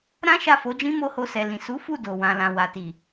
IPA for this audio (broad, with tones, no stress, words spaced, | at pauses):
ɾã˦ ʃa˦˨fo˨˦d͡ʒĩ˦ mo˦ho˧sɛ˨ lĩ˨ su˨˦fu˦˨ do˨wã˨lã˨ wa˨ti˨